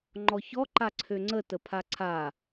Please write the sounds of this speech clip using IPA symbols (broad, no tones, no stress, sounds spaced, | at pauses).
ŋ͡ǃ ɔ ç ɔ ǃ a ǀʰ ø ŋ͡ǀ ə t ə pʰ a ǀʰ a